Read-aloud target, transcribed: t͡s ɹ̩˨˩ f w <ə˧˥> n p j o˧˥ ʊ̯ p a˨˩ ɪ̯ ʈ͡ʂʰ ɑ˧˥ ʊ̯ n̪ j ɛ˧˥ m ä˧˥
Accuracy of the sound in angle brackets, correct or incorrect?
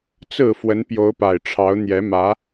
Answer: correct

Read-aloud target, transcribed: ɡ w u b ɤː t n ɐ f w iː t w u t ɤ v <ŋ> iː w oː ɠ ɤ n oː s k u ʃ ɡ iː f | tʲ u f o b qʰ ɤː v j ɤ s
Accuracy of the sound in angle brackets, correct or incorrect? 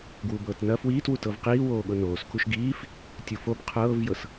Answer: incorrect: q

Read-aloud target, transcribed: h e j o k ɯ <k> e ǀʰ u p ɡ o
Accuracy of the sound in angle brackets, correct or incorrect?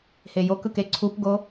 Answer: correct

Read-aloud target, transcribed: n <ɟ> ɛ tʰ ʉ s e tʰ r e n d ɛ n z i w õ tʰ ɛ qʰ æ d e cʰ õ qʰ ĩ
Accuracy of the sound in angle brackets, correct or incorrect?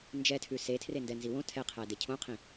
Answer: incorrect: d͡ʒ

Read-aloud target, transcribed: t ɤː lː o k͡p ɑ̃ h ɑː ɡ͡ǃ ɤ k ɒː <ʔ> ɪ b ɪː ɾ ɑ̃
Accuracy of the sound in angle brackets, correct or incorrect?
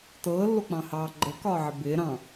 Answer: incorrect: ʕ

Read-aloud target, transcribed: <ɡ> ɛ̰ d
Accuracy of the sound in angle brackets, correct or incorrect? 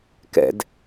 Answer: incorrect: k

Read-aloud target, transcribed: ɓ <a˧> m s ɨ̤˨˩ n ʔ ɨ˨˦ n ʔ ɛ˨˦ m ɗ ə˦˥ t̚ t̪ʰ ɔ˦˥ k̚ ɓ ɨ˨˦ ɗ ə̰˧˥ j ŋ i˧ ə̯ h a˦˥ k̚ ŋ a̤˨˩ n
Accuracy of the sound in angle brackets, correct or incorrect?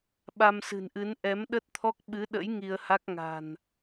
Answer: correct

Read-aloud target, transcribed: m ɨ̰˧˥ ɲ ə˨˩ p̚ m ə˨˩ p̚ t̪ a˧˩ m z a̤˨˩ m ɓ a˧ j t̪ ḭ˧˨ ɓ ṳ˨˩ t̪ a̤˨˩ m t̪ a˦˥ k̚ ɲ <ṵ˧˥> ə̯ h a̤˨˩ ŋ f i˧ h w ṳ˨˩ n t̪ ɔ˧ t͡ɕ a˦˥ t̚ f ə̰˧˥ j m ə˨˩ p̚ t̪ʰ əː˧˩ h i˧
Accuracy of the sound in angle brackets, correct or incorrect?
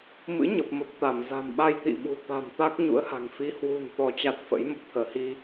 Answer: correct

